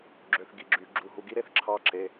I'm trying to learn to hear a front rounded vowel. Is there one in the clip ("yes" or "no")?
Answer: yes